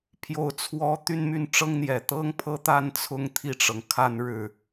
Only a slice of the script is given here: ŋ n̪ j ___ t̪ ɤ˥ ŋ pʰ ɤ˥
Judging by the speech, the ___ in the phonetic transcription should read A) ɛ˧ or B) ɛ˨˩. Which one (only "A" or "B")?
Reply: B